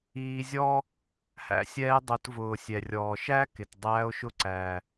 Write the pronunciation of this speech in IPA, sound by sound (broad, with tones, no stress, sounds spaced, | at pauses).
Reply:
iː˧ zʲ ɔː˥ | h æ̰˧ sʲ ɛː˧ dˤ ʊ˩˧ t v ʊː˩ sʲ ɛ˩ rʲ ɔː˩ ʃ æ˥ k ɪ˩ t dˤ æː˧ o̯ ʃ ʊ˧ ǀ æː˩